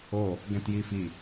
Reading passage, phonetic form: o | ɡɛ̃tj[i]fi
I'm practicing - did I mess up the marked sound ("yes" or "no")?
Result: no